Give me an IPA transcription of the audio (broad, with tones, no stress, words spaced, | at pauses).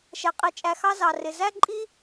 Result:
ʃɛ˩qʼi˨t͡ʃʼæ˨xɑ˥ zɑ˩rɪ˩ zæ˥ǃʼi˥